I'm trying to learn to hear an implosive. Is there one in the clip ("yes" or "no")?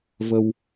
no